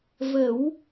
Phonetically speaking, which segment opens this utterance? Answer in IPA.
v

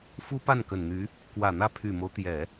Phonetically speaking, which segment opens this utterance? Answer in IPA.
f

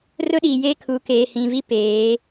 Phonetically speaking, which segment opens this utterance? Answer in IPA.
r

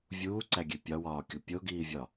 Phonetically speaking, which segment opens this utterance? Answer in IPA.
vʲ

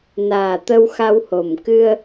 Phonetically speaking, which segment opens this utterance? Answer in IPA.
n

